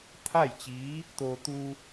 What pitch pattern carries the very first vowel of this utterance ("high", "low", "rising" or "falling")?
falling